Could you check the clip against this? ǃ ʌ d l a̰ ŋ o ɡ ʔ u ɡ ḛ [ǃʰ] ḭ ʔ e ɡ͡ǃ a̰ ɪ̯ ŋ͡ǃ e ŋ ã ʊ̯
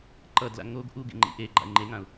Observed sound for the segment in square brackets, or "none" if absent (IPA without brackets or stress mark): ŋ͡ǃ